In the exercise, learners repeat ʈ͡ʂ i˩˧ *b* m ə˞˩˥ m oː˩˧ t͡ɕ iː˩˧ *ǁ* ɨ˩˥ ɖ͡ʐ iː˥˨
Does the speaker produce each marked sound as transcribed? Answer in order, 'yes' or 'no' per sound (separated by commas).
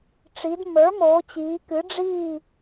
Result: no, no